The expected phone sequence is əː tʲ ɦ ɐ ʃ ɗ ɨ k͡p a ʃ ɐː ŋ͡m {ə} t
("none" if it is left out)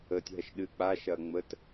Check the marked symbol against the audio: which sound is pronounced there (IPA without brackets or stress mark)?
ə